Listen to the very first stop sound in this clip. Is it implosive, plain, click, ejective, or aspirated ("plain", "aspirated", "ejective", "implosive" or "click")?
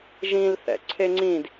click